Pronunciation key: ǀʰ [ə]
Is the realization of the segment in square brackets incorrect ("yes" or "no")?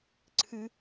yes